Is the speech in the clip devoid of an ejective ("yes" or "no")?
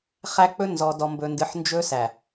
yes